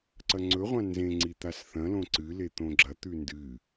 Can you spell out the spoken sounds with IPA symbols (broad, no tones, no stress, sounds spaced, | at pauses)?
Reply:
ǀ ɐ ŋ͡ǀ ɵ ʁʷ ã n z ẽ ŋ͡ǀ i t̪ a s θ ɐ̃ l õ ǀ ɨ l e t̪ õ ɡ͡ǁ ɐ t̪ ʉ n d ɨ